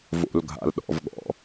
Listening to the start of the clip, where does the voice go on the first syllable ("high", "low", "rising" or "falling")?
low